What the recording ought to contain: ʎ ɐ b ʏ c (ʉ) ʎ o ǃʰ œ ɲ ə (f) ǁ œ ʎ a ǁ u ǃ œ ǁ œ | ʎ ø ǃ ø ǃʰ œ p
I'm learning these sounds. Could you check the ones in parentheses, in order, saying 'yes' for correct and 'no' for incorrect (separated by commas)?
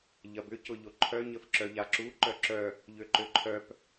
no, yes